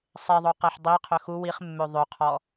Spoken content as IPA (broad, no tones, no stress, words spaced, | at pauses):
sˤeðˤo qeħdˤiqʰø xu wiχmːø ðˤøqʰɔ